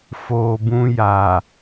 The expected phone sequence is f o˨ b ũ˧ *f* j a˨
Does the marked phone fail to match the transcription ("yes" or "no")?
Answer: yes